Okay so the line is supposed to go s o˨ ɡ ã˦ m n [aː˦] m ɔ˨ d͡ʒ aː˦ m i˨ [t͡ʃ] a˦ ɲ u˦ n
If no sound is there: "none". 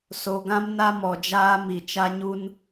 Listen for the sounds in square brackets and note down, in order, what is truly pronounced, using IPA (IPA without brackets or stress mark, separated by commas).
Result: a˦, t͡ʃ